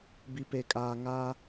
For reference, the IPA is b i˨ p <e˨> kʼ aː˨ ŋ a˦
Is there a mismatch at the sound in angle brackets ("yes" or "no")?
no